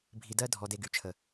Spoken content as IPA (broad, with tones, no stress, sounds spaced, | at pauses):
bʱ i˧ d ɜ˦ dʱ ɔ˧ d e˧ ɡ y˨ t͡ʃʰ ə˨